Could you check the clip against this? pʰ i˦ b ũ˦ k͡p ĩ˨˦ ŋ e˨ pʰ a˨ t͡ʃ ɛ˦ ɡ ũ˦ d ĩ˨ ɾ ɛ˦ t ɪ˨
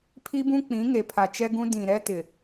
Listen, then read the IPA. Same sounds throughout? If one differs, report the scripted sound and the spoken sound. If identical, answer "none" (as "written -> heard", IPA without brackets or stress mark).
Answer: none